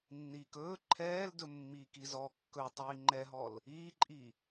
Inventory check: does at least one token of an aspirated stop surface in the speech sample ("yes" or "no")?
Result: yes